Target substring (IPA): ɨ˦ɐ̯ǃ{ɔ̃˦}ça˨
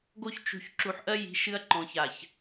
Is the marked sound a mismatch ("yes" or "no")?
yes